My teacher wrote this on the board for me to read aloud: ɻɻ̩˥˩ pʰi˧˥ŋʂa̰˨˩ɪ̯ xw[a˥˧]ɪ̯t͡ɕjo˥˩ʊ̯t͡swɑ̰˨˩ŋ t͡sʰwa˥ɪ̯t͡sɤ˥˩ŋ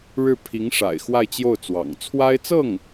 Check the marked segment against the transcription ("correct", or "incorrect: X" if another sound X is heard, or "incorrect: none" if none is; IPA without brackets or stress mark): correct